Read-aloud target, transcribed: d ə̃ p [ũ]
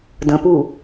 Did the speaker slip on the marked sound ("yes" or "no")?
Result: yes